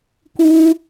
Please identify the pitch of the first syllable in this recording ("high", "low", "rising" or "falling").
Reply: high